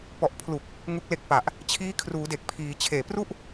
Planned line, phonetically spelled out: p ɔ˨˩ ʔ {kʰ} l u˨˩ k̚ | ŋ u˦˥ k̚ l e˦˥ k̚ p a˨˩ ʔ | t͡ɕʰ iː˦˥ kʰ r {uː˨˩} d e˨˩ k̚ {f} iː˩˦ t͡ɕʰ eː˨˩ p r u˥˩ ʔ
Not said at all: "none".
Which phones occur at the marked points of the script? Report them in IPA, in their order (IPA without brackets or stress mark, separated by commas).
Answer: pʰ, uː˩˦, pʰ